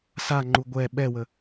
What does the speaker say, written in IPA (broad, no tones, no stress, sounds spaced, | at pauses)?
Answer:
s a ŋ͡ǃ u ɡʷ ɛ ɓ ɛ w ə